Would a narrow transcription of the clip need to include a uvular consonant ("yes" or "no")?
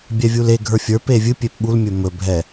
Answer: no